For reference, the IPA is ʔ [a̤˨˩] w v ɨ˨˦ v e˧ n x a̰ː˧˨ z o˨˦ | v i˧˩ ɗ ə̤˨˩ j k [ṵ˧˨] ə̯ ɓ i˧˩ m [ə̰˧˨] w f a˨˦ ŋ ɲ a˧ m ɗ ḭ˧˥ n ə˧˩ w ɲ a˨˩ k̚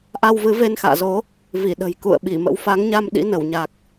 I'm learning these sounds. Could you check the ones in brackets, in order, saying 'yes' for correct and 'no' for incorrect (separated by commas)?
no, yes, no